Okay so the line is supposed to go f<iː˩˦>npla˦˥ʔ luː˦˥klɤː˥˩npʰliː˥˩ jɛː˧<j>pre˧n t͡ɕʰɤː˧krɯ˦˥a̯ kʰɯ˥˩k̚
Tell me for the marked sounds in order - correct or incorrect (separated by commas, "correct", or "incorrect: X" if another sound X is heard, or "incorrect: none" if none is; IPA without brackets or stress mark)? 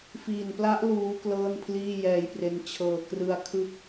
incorrect: iː˨˩, correct